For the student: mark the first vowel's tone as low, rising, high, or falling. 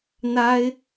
high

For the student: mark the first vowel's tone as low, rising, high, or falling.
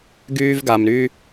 high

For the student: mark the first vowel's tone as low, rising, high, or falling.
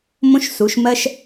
high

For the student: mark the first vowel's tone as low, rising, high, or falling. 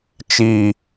low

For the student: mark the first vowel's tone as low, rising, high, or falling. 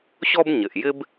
high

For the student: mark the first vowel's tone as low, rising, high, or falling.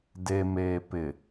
low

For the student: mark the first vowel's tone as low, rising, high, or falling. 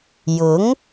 rising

